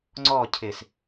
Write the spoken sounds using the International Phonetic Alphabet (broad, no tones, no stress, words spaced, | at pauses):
ŋ͡ǀɔ cʰɪs